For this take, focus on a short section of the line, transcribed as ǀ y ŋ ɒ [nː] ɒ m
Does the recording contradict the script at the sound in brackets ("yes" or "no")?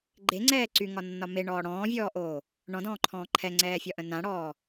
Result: no